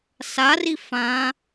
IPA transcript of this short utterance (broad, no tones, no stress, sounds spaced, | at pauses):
s a r i f ã